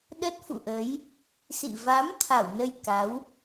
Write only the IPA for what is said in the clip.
ɗ ə˦˥ t̚ f ṵ˧˨ ʔ ə˨˦ j | s ḭ˧˨ v a˨˦ m t̪ʰ a˧˩ w n ə˧ j k a˨˦ w

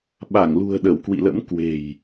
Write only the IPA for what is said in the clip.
ɓ a˧˩ ŋ l ṳ˨˩ ə̯ ɗ ə˧˩ w k w ḭ˧˨ l ə̰˧˥ m k w e̤˨˩ j

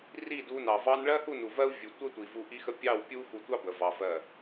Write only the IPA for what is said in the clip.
r i˦˨ d u˧ n ɑ˨ v ɑ˦ n ɭ ɜ˦ h u˦˨ n u˨ v ɜ˦ u̯ vʲ u˨ tʷ ə˦ tʷ i˨ v u˧ ʔ i˦ x ə˦ pʲ ɑ˦˨ w pʲ u˦ x u˧ tʷ ɑ˦ b ə˨ v ɑ˧ v ɜ˦˨

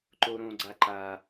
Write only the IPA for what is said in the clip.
ǃ o ɾ õ ɡ͡ǀ a ǃ a

